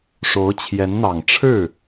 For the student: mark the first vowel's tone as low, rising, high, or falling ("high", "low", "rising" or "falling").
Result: rising